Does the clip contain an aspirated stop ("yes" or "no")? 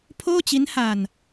yes